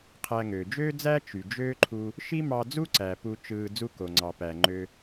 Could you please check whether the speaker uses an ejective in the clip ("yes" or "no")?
no